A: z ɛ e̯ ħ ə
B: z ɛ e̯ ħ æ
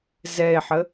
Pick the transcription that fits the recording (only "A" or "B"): A